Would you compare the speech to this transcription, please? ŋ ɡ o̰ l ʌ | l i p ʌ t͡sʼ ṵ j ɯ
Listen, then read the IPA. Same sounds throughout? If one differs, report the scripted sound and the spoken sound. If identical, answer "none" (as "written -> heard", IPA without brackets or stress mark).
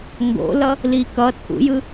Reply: p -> k